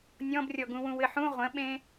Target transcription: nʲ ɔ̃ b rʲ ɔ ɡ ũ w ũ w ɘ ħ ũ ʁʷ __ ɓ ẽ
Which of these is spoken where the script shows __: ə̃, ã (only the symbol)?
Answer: ə̃